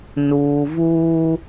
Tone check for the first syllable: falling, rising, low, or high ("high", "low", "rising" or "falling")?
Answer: low